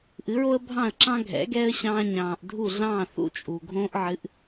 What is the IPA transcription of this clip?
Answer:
ʔ ɨ˩˥ ɹ o˥ ə̯ bʱ ɑ̃˥˩ ə̯ ǁ ɑ̃˥ ɡʱ ɛ̰˩˥ ɡ ɛː˥ ə̯ ɕ ɑ̃ː˧ ɲ ɑ̃ː˩ ʔ dʱ u˥˩ ɮ ɑ̃ː˥˩ θ ṵ˧ t͡ʃʼ u˩ ɡʱ õː˥ ʔ ʕ ɨ˩˥ ʔ

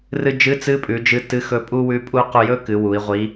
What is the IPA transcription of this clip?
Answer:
r ɨ˧ d͡ʒ ɨ˧˥ t͡s ɨ˧˥ pʼ ʉ˩˧ d͡ʒ ɨ˧˥ t ɨ˧˥ x ɵ˧˥ pʼ u˥ w ʉ˧˥ pʼ u˥ q u˧ j ɵ˥ k ɨ˩˧ w u˩˧ i̯ ʁʷ i˧˥

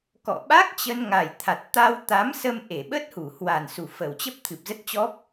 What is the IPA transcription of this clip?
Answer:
k ɔ̰˧˨ ɓ a˦˥ k̚ t͡ɕ ə˧ n ŋ a˨˩ j t̪ʰ a˨˩ t̚ t̪ a˧ w t̪ a˨˦ m s ə˧ m ʔ e˧˩ ɓ ə˦˥ t̚ h u˧˩ h w a˨˩ n s u˨˩ f ə˨˩ w t͡ɕ ə˦˥ p̚ t̪ʰ ɨ˨˩ p̚ z ə˦˥ t̚ t͡ɕ ɔ˦˥ p̚

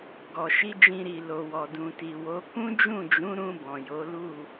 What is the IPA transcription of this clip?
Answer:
ɡ ɔ˨ ʃ i˧ d͡ʒ ĩ˨ ɾ i˨ l o˨ w ɔ˨ d ũ˨ t i˨ w o˨˦ k ũ˦ d͡ʒ ũ˦˨ d͡ʒ ũ˨˦ ɾ ũ˧ b ɔ̃˨ j o˨˦ l u˦˨

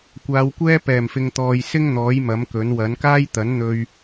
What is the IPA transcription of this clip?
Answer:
kʷ aː˨˧ w kʷ ɛː˥ p ɛː˨˩ m f ɪ˨ ŋ t̪ ɔː˨ j s ɪ˥ ŋ n̪ ɔː˨˥ j m ɐ˨˥ m k ɵ˨˥ n w ɐ˨˥ n k aː˥ j t̪ ɐ˨˥ n n̪ ɵ˧ ɥ

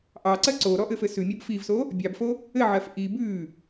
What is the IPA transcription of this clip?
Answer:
ʔ ɑ ǀ ɜ ǀ o ɾ ɔ ʔ ɘ f ɘ s ʉ mʲ ɔ b f i v s o | bʲ ɑ b f o | ɘ ʕ ɜ f ʔ i b ʉ

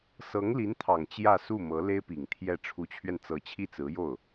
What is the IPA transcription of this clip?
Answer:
s ɤ˧˥ ŋ l i˧˥ n t̪ʰ ɑ˨˩ ŋ t͡ɕ j ä˥˧ s u˥˩ m ɤ˧˥ l e˥ ɪ̯ p i˨˩ ŋ t̪ʰ j ɛ˥˩ ʈ͡ʂʰ u˧˥ t͡ɕʰ ɥ ɛ˧ n t͡s ɤ˧˥ t͡ɕʰ i˥˩ t͡s ɹ̩˧˥ j o˥˩ ʊ̯

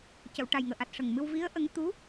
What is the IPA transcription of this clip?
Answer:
c ə˨˩˨ w ʈ a˨˩ j ŋ əː˨˩ ʔ a˨˩ t̚ ʂ ə˨˩ ŋ m ɨ˧ w v i˧˥ ə̯ ʔ ə˧˥ ŋ t̪ u˧˥

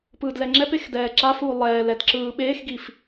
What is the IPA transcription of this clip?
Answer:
p ɯː d l ɛ ŋ͡ǁ ɛ p e x d ɛː ǁ a f uː lˠ ɛː l ɛ d ǁ ɯː ɓ eː x ɡ i f

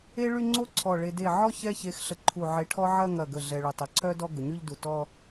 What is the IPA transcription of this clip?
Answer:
e˥ ɭ y˥˧ ŋ͡ǀ o˥ ǀʰ ɔ˧˩ ɭ e˧ d e˧˩ ʕ ɔ˥˧ ç ɛ˥˧ ç e˧ x ɬ ə˧˩ ǃʰ u˧˩ ʕ e˧ ʈʰ ɔ˥ ʕ ɐ˥˧ ŋ ɐ˧˩ ɡ ə˧˩ ɮ ɛ˧ ɭ ʊ˧˩ tˤ ɐ˧ ǀʰ œ˥ d ɔ˥˧ ɡ ʊ˩˧ ɲ y˥˧ ʎ d u˧˩ t ɔ˥˧

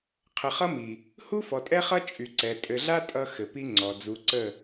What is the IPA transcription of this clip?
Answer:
qʰ ə˨ χ ʌ˦ m i˨ | h u˦ f ɔ˨ tʼ ɛ˦ χ ʌ˦ t͡ʃʼ y˨ ǀ ɛ˨ tʼ ɘ˨ ɮ a˦ tʼ ʌ˦ x ɘ˨ p i˦ ŋ͡ǀ ɔ˨ d͡z u˨˦ ǀ ə˦˨

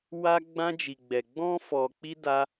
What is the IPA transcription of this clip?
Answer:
w a˧ ɡ͡b ã˧ d͡ʒ i˨ ɡ͡b ɛ˨ ɡ͡b ɔ̃˧ f ɔ˨ k͡p i˧ d a˦

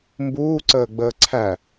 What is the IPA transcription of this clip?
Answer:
m b uː ǀ əː ɡ͡b əː ǀʰ æ

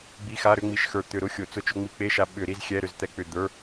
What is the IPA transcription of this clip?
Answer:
ɡ͡b i˧˥˧ x a˧˥˧ ɾ ʏ˧˥˧ ŋ͡m i˧ ʃ x ə˞˧˩ t̪ ʏ˧˩˧ ɾ ʊ˧˥˧ xʲ ʊ˧˩˧ t͡s ʊ˧ t͡ʃ ʊ˧ ŋ͡m i˧ k͡p e˧˥˧ ʃ a˧ ɓ ʏ˧˩˧ ɾ i˧˥˧ z xʲ ɛ˧˥˧ ɾ ʏ˧ z t̪ ɛ˧ k͡p ʏ˧˩ d̪ ə˞˧˥˧

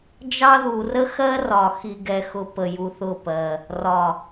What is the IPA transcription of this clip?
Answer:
d͡ʒ ɑ˦ ð u˨ r ə˦ x ɜ˦ r ɒ˨ x i˨ ɡ ɛ˨ x ʊ˨ p ə˨ j u˨ θ ʊ˦˨ p ɜ˨ | r ɒ˨

